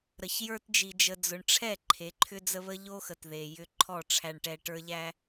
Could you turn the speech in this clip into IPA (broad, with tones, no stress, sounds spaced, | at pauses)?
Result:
ɾ ə˨ ç j ə˞˧ t d͡ʒ i˨ d͡ʒ ə˨ d͡z ʊ˨ ɳ ʈ͡ʂʰ ɛ˦˨ ǃʰ e˨˦ ǃʰ ʏ˦ d͡z ə˦ β ə˦ ʎ o˦ x ə˨ t ð e˨ j ʏ˧ ǃʰ ɔ˦˨ ʈ͡ʂʰ æ˧ ɳ ʈ ɛ˧ ʈ ə˞˦ ʎ æ˦